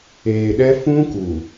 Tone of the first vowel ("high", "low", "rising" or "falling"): low